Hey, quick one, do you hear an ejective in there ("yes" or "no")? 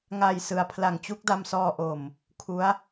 no